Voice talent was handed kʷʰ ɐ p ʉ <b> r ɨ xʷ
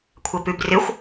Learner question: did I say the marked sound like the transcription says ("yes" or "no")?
yes